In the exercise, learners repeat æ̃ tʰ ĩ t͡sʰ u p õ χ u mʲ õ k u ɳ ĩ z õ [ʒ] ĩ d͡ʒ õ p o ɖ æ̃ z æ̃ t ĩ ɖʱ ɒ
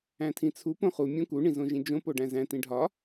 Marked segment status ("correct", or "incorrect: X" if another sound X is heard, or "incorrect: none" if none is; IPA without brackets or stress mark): correct